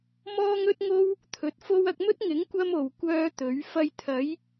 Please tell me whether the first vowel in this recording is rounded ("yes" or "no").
yes